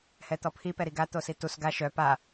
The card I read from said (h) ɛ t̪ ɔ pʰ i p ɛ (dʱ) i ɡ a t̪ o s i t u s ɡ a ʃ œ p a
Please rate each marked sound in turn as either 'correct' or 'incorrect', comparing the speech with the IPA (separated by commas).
correct, incorrect